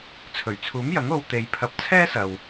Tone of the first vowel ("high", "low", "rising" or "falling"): low